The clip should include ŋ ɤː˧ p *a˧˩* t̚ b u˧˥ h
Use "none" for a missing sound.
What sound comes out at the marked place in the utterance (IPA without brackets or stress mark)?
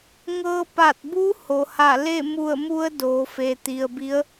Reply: a˧˩